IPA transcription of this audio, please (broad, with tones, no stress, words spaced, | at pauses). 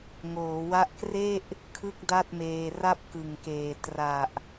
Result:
ŋoː˩˦wa˦˥ʔkre˥˩ʔ | kʰɯ˥˩k̚da˥˩t̚meː˧ ra˥˩p̚kɯ˨˩ŋkeː˨˩ tra˨˩ʔ